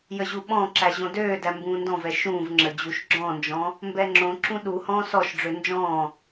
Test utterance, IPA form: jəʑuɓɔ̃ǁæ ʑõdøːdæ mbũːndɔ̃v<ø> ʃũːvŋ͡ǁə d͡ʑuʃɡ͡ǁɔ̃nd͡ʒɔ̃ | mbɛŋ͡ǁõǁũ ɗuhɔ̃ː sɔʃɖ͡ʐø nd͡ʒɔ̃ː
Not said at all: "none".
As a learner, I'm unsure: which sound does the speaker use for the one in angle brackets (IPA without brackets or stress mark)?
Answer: ɛ